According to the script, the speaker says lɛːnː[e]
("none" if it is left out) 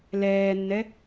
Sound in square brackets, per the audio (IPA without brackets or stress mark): ɛ